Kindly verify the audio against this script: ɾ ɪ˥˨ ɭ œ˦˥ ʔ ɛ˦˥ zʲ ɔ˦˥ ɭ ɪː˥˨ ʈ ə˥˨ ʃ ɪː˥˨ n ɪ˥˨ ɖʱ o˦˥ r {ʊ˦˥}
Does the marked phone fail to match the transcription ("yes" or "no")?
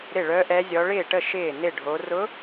no